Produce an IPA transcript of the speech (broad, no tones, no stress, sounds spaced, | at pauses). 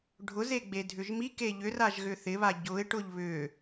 ɖʱ ʊ z e ɡ͡b e dʱ ʏ ʒ m i k e ʎ ʏ r a ʒ ɣ ʏ θ ɪ β a ɟ ʊ ɪ̯ ʈ ʊ ʎ β ʏ